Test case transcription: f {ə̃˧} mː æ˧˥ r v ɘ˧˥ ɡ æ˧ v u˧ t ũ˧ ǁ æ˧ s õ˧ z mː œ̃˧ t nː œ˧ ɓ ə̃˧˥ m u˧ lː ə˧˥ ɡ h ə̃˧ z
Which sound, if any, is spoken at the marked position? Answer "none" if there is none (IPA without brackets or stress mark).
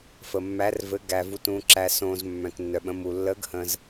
ə˧